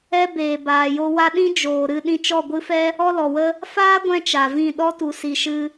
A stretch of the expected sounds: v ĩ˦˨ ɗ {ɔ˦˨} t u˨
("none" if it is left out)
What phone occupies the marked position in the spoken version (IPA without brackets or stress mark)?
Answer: ɔ˦